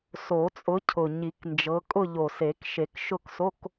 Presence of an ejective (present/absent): present